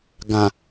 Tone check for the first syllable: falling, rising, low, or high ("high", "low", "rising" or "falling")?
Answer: low